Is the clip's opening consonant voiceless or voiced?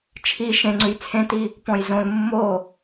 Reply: voiceless